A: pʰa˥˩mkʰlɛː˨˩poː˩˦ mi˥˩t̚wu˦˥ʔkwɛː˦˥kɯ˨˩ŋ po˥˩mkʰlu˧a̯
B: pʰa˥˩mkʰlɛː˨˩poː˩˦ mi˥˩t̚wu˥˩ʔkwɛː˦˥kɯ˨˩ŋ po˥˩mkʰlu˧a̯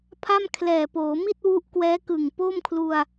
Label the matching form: A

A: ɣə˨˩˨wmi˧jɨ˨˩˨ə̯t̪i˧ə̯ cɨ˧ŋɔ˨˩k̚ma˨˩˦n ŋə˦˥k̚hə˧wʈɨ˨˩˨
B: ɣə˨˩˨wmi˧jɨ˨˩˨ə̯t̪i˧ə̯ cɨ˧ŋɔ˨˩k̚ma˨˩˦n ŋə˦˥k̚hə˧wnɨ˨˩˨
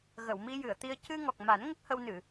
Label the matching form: B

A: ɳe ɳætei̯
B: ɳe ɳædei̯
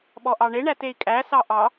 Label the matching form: A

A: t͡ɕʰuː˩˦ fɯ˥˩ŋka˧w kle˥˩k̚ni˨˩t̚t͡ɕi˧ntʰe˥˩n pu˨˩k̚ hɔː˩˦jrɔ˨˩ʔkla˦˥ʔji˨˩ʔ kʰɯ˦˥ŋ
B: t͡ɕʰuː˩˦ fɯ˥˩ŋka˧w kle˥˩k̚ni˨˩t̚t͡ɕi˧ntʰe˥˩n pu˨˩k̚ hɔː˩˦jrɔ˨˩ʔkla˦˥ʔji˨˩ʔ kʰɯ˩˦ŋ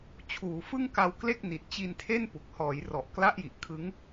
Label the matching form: A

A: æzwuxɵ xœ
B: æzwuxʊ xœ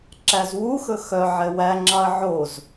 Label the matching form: A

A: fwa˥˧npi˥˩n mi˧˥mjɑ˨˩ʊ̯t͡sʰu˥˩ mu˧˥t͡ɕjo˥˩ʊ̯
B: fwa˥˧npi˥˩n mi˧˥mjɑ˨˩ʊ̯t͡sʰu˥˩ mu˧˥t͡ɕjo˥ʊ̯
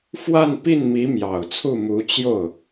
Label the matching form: A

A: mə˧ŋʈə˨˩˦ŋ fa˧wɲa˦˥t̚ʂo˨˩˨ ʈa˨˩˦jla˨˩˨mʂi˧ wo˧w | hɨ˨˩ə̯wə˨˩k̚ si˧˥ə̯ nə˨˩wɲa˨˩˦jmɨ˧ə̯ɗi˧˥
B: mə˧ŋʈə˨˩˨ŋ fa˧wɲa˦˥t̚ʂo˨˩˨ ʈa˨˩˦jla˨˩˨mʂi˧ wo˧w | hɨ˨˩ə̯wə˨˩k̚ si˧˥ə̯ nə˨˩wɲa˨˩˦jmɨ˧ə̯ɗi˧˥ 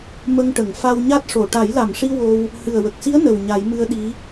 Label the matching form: B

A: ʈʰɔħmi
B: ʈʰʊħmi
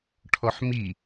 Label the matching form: A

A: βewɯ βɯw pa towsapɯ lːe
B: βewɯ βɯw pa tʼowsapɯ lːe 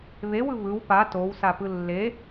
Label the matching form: A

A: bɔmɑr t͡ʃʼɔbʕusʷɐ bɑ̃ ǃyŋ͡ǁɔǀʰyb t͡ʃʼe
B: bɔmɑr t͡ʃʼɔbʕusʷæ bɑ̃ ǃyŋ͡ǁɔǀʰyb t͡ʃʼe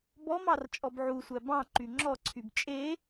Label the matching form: B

